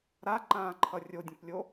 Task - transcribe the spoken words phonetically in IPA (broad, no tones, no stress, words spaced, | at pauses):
ɾaǃãːǃʰʌ rʲodʲə̃plʲo